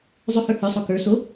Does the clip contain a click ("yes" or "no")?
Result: no